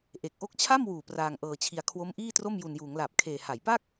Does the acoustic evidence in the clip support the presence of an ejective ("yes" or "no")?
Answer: no